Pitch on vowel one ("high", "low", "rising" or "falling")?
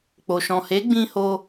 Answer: low